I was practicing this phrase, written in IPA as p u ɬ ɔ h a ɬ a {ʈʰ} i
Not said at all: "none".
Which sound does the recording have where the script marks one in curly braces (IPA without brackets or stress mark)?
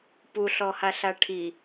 ʈʰ